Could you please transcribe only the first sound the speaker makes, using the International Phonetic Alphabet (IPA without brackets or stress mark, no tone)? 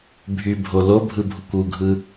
bʱ